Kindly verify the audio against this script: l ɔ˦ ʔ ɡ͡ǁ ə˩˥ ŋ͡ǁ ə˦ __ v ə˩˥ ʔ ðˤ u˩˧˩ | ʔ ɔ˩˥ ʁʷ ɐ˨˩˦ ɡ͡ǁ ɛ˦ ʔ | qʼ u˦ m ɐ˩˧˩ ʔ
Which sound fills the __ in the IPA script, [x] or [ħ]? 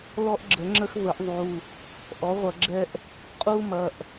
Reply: x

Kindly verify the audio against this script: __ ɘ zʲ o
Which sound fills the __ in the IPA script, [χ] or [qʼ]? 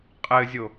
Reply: qʼ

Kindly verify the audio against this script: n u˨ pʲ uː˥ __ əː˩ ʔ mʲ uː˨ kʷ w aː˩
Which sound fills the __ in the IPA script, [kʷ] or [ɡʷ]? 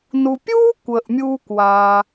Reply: kʷ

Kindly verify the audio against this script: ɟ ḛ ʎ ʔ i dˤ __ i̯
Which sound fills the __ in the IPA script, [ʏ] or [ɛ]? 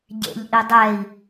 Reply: ɛ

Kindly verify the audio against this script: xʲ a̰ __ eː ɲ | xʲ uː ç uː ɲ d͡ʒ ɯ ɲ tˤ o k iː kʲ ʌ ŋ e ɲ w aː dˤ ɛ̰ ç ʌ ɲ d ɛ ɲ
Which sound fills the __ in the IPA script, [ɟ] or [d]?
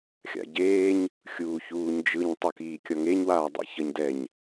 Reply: ɟ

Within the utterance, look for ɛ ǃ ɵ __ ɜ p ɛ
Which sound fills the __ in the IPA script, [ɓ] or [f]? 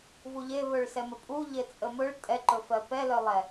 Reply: f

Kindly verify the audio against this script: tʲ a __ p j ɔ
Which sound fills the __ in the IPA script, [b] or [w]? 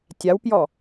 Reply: w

